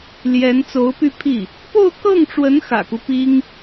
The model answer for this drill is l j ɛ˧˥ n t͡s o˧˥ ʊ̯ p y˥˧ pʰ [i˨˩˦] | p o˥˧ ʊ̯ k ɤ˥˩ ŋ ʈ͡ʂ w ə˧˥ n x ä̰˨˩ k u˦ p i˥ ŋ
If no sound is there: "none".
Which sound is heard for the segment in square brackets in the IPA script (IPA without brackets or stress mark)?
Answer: i˥˩